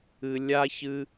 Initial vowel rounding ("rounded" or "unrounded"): unrounded